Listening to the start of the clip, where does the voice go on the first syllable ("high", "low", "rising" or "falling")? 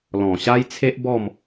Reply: low